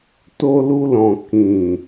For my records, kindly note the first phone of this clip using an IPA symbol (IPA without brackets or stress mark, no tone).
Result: t